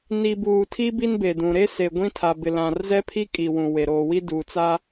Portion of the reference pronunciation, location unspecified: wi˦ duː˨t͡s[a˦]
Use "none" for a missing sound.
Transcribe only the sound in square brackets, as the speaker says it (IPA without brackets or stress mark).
a˦